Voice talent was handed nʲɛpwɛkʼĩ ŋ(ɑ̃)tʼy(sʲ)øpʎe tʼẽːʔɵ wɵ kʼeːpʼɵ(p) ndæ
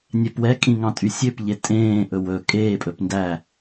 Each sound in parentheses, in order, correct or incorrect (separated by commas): correct, correct, correct